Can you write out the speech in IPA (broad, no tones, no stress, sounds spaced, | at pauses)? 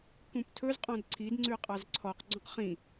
k ũ p tʰ ɵ z qʼ ɔ̃ d ǀʰ i d ŋ͡ǀ ʉ qʼ ɑ z ǀʰ ɔ q ɡ͡ǀ õ q χ ĩ